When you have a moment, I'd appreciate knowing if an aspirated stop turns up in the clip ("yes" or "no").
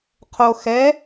yes